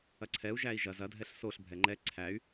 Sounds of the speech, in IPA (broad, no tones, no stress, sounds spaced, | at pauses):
ɐ ǀʰ ɛ u̯ ʒ æ i̯ ʒ ɐ z ɐ dʱ ɛ ɬ s o ɬ bʱ ɛ ŋ͡ǃ ɛ ǀʰ æ y̯